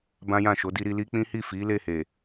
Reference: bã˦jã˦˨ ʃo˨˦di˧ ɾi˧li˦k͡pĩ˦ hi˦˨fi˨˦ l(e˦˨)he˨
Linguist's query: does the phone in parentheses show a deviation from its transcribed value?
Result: no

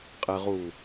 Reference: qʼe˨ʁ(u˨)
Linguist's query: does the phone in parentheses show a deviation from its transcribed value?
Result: no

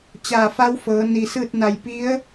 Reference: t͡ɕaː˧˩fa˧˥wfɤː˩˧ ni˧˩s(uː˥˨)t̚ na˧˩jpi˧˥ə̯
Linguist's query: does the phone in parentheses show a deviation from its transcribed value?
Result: yes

